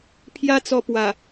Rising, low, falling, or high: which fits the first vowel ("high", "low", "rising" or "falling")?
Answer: high